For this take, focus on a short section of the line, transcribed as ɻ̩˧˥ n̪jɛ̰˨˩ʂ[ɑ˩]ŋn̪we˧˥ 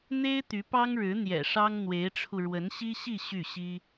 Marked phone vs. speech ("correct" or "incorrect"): incorrect